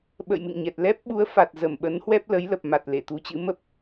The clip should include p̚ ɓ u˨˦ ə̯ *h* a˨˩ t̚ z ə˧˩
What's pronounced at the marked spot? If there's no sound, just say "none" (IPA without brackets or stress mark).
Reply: f